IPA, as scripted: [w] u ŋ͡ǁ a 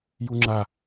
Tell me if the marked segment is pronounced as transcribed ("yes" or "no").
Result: no